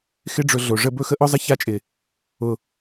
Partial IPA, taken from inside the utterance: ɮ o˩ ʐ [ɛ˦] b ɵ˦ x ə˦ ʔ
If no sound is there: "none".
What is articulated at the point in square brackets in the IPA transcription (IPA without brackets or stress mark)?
ə˦